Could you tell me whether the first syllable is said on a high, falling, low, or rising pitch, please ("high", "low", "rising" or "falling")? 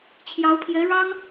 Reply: rising